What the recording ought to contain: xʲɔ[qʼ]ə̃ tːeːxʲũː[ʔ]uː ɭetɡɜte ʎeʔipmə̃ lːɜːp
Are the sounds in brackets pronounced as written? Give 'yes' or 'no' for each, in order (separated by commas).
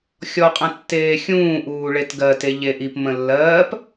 yes, yes